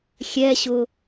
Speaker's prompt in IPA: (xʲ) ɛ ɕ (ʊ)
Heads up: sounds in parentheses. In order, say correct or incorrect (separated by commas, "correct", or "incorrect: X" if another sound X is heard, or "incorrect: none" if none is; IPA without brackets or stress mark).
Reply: correct, correct